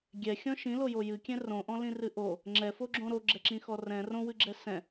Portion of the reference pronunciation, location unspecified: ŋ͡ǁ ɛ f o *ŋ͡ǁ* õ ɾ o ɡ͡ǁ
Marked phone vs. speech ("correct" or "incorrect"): incorrect